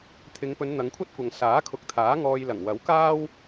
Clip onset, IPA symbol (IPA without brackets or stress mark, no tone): t̪ʰ